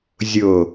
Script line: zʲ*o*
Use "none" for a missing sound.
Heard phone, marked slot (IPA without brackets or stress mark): o